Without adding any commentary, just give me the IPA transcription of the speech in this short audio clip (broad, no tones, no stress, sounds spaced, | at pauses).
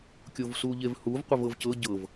kʲ o v s u ʎ e v h u v qʷ ə v ɤ v c ɤ ɟ ɤ v